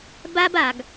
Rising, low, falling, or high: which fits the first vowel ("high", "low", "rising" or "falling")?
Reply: high